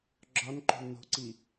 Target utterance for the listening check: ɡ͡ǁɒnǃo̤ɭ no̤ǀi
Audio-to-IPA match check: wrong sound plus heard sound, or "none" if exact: ɭ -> l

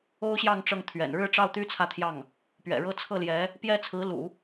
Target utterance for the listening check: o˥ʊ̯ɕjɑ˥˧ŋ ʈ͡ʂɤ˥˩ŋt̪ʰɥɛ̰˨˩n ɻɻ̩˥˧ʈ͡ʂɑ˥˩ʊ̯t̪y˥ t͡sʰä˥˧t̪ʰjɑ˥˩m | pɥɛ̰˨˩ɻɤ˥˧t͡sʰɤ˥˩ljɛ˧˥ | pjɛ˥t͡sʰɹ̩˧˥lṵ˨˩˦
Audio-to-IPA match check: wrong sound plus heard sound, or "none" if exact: m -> ŋ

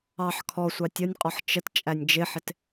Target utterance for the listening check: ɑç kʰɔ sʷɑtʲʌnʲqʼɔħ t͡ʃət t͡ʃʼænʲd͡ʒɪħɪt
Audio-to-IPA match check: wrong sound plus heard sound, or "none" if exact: ç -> ħ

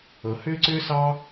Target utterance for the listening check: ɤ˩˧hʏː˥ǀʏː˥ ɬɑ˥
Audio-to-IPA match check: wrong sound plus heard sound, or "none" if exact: ɬ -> s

